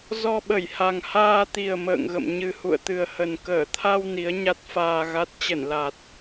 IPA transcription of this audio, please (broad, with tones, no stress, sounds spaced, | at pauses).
z ɔ˧ ɓ ə˧˩ j h a˨˩ ŋ h aː˧ t̪ i˨˩ ə̯ m ə̰ː˧˨ ŋ ɣ ə̰˧˨ m ɲ ɨ˨˩ h ṵ˧˨ ə̯ t̪ ɨ˨˩ ə̯ h ə˨˩ n k əː˧˩ t̪ʰ a˧ w n i˨˦ ə̯ ɲ a˦˥ t̚ f aː˧ ɣ a˦˥ t̚ t͡ɕ ə˧˩ n l a˨˩ t̚